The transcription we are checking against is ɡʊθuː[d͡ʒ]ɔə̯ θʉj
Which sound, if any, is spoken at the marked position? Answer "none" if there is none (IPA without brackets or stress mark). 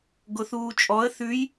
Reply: t͡ʃʼ